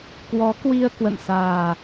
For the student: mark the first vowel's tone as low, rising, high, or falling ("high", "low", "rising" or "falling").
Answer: rising